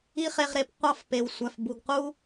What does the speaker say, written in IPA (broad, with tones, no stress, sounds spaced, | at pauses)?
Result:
i˦ χ e˧ ʁ ɾ e˧ p qʷ ɑ˦˨ f p e˨ w sʷ æ˨ f b u˨ ɡ q u˦